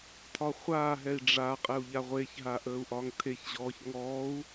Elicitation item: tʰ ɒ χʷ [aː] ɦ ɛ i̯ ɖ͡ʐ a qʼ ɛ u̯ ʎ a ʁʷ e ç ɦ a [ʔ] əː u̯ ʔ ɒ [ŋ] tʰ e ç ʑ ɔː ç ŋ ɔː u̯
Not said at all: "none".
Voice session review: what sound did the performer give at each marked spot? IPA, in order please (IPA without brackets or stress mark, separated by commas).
aː, ʔ, ŋ